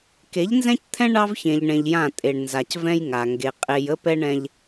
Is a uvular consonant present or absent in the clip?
present